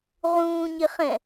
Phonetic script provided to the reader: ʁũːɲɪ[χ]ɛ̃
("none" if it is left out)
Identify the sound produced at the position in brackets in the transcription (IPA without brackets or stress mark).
χ